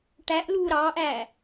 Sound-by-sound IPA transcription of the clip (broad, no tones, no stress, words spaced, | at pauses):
ʈæʔluː ɾɑːʔæː